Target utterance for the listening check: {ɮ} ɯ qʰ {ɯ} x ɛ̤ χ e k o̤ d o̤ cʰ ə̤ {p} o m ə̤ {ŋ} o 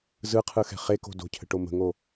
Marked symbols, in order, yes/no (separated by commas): no, yes, no, yes